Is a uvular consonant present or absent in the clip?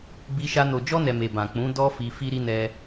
absent